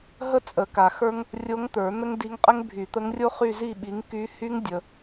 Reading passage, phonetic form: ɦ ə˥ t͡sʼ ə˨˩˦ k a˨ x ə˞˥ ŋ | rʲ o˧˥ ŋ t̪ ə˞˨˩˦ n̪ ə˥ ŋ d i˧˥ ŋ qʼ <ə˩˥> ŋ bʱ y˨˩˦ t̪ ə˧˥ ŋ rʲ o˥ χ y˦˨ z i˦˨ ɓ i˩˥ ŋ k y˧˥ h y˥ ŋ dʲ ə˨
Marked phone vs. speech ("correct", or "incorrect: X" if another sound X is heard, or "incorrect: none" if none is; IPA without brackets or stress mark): incorrect: ə˥